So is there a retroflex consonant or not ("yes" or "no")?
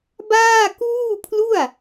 no